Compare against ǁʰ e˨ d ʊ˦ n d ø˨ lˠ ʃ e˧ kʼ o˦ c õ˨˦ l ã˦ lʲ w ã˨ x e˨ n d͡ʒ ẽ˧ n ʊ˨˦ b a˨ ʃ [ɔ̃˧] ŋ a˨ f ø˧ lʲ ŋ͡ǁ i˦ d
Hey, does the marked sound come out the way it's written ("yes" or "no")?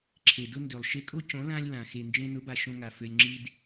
no